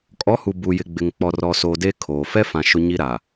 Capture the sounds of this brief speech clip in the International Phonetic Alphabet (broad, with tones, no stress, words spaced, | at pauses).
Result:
kʼɔ˨˦hu˨ bu˨jɪ˨ɡ͡bɪ˨ŋ k͡pɔ˨rɔ˨soː˨ de˦kʰoː˨ fɛ˦fã˨ ʃʊ˦ɲi˦ɾa˨